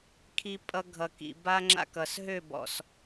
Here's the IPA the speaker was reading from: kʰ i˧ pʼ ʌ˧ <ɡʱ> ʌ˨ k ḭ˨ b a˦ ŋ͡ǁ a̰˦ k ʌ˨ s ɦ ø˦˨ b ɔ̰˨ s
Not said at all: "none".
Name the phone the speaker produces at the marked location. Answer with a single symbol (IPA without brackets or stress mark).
ɡʱ